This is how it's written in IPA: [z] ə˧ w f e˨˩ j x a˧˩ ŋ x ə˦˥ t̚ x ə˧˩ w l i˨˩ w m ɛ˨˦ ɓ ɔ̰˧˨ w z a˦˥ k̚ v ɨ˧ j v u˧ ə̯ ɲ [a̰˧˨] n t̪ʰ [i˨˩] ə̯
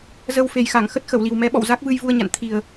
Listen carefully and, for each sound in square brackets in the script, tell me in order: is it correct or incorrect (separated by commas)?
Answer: correct, correct, correct